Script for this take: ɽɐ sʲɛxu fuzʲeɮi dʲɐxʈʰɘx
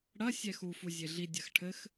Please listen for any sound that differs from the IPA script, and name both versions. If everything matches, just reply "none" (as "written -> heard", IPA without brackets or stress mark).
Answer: none